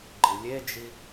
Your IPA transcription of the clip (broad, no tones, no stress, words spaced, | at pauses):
ɡ͡ǃɨlʲed͡ʒi